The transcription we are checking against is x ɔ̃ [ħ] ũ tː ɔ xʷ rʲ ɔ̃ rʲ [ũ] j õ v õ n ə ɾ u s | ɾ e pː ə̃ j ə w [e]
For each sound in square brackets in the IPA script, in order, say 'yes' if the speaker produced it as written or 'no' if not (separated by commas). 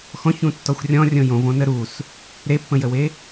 no, no, yes